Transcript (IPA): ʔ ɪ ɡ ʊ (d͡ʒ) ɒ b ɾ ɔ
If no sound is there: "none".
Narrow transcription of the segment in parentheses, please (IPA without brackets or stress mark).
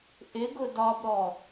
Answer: d